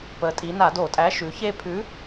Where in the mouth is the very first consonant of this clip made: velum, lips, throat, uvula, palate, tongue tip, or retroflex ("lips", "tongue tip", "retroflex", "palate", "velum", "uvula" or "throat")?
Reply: lips